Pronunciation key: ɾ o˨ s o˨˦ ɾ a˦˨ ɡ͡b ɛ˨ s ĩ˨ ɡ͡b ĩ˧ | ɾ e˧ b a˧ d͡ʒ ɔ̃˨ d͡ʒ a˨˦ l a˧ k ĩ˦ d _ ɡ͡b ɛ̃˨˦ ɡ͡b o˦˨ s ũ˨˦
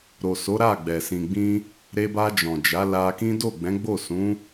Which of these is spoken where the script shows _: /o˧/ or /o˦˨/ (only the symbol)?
o˦˨